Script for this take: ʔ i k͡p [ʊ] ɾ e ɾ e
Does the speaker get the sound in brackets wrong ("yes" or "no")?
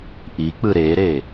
yes